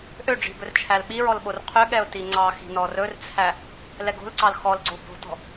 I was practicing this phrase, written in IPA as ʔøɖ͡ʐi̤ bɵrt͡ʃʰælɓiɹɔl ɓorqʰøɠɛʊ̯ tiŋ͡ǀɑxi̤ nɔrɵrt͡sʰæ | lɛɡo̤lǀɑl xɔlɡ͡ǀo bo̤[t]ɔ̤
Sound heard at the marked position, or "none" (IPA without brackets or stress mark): t